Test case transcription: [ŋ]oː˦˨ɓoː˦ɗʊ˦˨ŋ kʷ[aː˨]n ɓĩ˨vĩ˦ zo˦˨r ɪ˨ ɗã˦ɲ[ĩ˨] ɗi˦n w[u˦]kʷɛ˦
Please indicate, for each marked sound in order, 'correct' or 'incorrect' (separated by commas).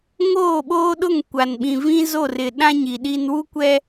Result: correct, incorrect, incorrect, correct